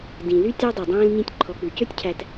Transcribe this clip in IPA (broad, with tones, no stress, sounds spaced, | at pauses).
d ĩ˨ l y˦ tʲ ɑ˦ dˤ ʉ˨ dˤ æ̃ː˦ l ɲ ĩ˦ tʲ ǃʰ ɔ˧ k͡p ʉ˧ c ø˦ tʲ cʰ æ˧ t